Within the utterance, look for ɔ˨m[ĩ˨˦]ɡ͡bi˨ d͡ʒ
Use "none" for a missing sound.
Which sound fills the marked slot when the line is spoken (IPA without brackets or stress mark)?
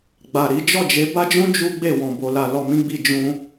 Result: ĩ˧